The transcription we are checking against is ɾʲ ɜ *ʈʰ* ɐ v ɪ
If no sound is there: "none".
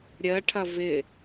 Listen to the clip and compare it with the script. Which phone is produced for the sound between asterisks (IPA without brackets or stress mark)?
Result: ʈʰ